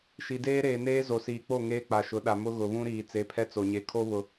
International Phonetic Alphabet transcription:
ʃi˨ deː˦ɾeː˨neː˦ zo˨siː˨k͡po˦˨ ŋeː˦k͡pa˨ ʃʊ˨˦ɗa˨ mʊ˦ ɣʊ˨βũ˦ɾiː˨ t͡se˨˦pʰɛ˦t͡so˨ɲe˨ kʰo˦βʊ˨

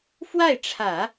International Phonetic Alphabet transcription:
fwa˥˩ɪ̯ʈ͡ʂʰä˨˩˦

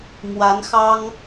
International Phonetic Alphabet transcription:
mwa˧˥nxɑ˥ŋ

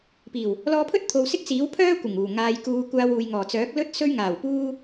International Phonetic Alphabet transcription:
piː˨˩w | lɔː˧pʰɵ˥t̚t̪ʰo˨w sɪ˥k̚t͡siː˨˥w pʰœː˥ kʷɪ˨˩ŋuː˨˩ ŋaː˨jkuː˨˧kʷaː˧w uː˨jŋɔː˨˩t͡sœː˨˥k̚ lɵ˥t̚ sɵ˧ɥŋaː˨˩wpuː˧

